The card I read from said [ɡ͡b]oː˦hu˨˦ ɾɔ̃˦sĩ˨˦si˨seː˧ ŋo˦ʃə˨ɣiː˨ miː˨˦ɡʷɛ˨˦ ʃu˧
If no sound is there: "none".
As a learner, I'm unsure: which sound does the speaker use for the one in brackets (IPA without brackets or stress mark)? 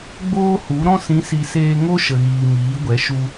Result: ɡ͡b